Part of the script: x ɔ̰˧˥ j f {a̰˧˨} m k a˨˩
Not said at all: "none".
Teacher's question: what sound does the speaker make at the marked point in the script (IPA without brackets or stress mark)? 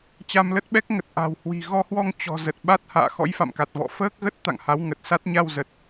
a̰˧˨